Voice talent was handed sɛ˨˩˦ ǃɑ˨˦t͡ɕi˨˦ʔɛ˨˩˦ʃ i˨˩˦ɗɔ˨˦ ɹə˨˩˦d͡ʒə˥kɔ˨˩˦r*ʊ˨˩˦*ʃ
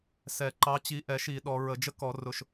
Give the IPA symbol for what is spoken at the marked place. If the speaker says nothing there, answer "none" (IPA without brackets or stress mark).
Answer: ʊ˨˩˦